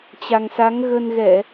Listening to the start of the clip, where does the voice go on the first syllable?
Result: low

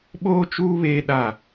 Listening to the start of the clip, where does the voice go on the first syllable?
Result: high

